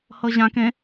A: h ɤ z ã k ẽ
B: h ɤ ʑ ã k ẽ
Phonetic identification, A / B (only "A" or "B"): B